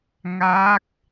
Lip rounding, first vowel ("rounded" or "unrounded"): unrounded